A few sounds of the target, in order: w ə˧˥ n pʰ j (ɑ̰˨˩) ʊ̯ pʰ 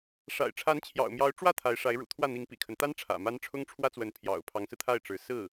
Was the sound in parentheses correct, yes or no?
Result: yes